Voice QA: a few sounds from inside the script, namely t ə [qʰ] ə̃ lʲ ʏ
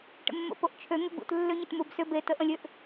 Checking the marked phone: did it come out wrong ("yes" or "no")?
yes